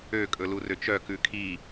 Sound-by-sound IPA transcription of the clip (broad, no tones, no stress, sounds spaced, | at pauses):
ø kʼ ɵ l u r ø t͡ʃ œ k ʉ kʰ i